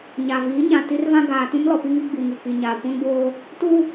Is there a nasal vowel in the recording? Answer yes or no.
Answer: yes